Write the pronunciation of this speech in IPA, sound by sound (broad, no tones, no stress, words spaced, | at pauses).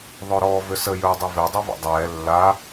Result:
ðˤɵɾɔːvʏsə jɵːdˤɵve dˤɛva̰dˤɛː lːa